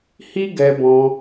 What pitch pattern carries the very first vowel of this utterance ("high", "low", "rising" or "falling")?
high